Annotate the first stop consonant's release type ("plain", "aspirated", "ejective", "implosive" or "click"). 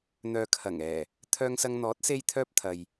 aspirated